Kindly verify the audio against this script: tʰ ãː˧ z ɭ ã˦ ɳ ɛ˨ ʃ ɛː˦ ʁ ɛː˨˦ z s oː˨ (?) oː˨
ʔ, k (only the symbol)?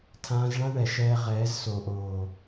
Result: ʔ